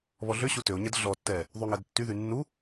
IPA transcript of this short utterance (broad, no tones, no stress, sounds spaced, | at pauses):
β ɔ ɮ ʏ ɕ u t ø o̯ ɲ ɛ d ɮ ɔ tː ɛ | ðˤ y ŋ ɛ d tː y ð y nː u